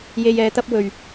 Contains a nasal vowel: no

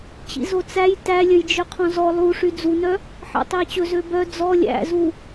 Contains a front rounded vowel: yes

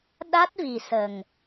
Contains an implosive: yes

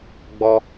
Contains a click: no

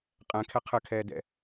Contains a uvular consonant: yes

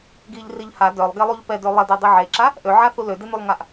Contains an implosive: no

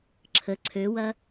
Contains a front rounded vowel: yes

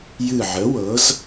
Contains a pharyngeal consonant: yes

